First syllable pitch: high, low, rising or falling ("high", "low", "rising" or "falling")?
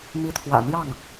rising